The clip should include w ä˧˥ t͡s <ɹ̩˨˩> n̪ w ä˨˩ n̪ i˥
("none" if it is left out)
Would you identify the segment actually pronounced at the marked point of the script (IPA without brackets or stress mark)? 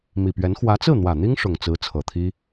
ɹ̩˥˩